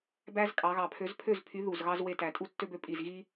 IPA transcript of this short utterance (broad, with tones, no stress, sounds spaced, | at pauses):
b æ˦ z kʼ ɑ˩˧ ɣ ɑ˨˩ pʰ ø˨˥ z pʰ ø˥˩ z pʰ y˨˥ ð u˨˩ z ɣ ɑ˦ z w e˦ t æ˩˧ tʼ u˦ tː ø˦ b ø˨˥ pʼ i˨˩ z ɣ i˦